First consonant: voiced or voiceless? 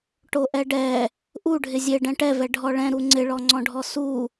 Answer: voiceless